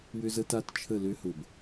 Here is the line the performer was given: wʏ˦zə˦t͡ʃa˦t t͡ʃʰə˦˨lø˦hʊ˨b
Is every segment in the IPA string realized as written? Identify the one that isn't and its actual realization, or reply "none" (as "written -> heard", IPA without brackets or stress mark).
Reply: t͡ʃ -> t